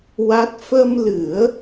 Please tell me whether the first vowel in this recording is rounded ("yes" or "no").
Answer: no